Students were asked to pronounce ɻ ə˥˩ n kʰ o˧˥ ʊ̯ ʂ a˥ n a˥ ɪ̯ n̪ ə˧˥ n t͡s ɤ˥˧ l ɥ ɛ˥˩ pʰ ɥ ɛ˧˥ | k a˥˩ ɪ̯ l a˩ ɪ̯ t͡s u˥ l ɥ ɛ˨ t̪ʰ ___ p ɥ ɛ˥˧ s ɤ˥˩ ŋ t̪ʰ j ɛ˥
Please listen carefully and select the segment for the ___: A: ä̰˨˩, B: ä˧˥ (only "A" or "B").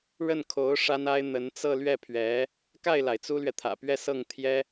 A